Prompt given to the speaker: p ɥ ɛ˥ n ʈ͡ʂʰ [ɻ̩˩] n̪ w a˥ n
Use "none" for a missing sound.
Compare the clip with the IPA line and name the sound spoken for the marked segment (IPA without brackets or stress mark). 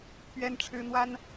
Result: ɻ̩˥